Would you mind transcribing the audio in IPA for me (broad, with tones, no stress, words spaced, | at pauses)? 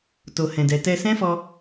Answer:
to˨hɛ̃˨dɛ˨ tɛ˧sɛ̃˦fɔ˧